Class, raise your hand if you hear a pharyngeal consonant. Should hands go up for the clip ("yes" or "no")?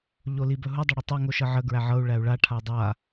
yes